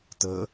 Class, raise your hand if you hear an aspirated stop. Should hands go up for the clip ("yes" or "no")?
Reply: no